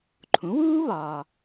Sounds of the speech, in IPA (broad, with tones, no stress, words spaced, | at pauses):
ǃʰũ˩˥wuː˥ βɒː˧